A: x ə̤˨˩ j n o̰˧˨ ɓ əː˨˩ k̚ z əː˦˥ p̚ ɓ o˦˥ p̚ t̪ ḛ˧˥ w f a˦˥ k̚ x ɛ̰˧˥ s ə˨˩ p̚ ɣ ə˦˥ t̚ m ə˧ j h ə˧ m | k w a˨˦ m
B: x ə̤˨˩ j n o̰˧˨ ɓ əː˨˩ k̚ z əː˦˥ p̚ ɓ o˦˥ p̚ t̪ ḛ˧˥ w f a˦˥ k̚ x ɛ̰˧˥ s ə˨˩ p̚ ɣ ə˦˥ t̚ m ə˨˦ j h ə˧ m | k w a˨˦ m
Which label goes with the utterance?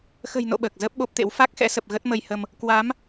A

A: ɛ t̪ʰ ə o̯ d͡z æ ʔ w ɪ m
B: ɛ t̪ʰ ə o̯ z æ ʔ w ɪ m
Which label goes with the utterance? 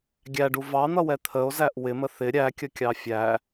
B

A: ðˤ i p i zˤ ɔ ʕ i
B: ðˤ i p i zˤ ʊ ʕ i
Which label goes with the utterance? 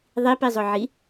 B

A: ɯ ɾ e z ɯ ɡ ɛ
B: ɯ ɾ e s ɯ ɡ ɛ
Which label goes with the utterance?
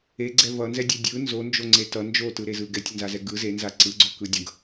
A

